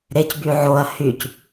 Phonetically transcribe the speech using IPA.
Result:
ɾ e c b y ʕ o ɐ̯ h y c

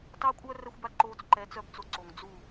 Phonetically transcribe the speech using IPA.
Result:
t ɑ˦ kʷʼ œ˦ r ɛ˦ xʷ b a˦ ǃ oː˧ t͡s ǃ ɛ˨˦ t͡s œ˦ b t͡s o˧ ǀ o˨ ŋ d͡z u˦˨

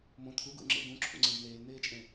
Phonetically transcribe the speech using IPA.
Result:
m õ t̪ʰ u ɡ ṵ ŋ͡ǁ ḛ ɡ ũ ǁʰ ṵ ŋ͡ǀ ẽ ɖ n̪ eː l n̪ eː t͡ʃʼ ẽ

